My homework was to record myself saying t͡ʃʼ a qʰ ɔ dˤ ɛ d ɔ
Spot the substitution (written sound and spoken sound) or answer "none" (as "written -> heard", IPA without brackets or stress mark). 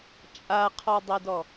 none